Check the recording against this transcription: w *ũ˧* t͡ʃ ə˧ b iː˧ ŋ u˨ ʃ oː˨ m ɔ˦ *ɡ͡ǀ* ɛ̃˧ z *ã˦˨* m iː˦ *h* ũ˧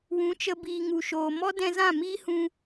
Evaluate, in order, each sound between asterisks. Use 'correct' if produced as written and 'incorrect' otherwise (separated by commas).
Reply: incorrect, incorrect, correct, correct